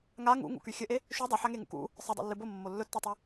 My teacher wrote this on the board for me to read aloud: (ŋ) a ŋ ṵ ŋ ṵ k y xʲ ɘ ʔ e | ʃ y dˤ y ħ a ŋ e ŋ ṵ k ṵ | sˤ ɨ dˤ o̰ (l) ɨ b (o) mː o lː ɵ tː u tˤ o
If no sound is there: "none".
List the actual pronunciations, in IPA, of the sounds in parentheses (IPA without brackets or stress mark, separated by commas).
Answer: ŋ, lː, o